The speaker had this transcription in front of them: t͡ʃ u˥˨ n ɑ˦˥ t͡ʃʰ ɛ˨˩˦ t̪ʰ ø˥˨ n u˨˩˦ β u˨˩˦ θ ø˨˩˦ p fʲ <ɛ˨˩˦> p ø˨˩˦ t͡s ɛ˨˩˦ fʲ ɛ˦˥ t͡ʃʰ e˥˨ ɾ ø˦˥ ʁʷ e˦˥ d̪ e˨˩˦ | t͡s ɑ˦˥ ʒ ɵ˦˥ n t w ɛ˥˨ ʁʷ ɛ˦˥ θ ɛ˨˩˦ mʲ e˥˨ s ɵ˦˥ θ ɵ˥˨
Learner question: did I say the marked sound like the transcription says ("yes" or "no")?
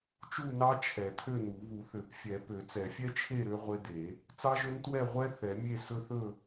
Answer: yes